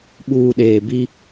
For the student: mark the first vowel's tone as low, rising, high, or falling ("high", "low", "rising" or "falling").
low